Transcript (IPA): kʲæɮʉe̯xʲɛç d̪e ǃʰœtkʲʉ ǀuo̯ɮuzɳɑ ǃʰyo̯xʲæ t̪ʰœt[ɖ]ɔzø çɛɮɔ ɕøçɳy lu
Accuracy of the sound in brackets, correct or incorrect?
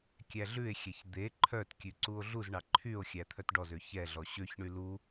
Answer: correct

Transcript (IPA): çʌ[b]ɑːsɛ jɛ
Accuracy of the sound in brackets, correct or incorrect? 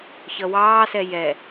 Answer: incorrect: w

